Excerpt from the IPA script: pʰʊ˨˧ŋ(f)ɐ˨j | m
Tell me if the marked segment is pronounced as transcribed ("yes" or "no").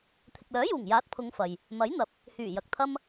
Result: yes